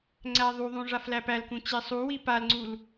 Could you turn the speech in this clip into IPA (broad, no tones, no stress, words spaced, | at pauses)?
ŋ͡ǀæðˤuðˤũ ʐaflæpælkũ t͡ɕesˤuwi palŋ͡ǀul